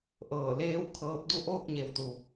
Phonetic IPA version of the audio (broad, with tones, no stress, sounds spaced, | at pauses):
ʔ ɤː˧˩ l eː˧˥ w kʰ ɤː˧ p̚ d u˥˨ ʔ oː˥˨ k̚ ɲ e˩˧ w t̪ u˩